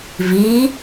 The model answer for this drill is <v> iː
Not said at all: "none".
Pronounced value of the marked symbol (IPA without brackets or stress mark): v